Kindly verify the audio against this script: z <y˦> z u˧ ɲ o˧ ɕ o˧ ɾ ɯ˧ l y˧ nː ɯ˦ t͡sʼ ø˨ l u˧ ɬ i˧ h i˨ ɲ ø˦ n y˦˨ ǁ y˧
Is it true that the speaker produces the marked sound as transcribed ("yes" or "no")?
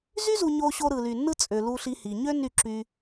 yes